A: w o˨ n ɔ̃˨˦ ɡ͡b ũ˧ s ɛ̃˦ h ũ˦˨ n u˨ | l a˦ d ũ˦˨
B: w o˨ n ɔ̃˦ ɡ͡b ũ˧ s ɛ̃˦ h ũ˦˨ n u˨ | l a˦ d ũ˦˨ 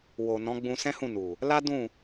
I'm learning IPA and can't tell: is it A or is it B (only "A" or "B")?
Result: A